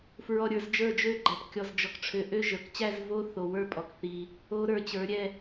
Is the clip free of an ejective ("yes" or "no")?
no